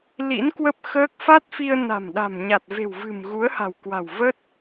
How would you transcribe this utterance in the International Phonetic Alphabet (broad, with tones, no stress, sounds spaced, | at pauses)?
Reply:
l ḭ˧˥ n k w ə˦˥ p̚ x əː˦˥ k̚ f a˦˥ t̚ f i˧ ə̯ n a̤˨˩ m ɗ a̤˨˩ m ɲ a˨˩ t̚ v e̤˨˩ w v ɨ̤˨˩ m ɣ u˨˦ ə̯ h a̤˨˩ w k w a̤˨˩ w v ə˦˥ t̚